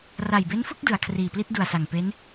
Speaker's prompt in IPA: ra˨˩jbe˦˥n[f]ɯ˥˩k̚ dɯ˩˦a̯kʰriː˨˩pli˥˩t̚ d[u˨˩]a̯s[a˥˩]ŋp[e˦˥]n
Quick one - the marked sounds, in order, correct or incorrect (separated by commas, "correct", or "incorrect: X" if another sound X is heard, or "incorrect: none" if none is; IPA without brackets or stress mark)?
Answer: correct, correct, incorrect: a˨˩, correct